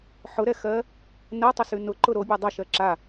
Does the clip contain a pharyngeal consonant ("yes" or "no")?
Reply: yes